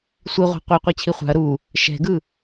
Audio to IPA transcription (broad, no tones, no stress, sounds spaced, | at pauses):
sʷ i ʁʷ a̤ qʷ ɛ qʷ ɤ t͡ɕʰ i χʷ a̤ ɐ̯ ɾ u | ʃ ɛ̤ ɡ ɯ